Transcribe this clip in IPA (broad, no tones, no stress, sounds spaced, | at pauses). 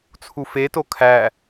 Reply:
t͡sʰ u f e t o kʰ æ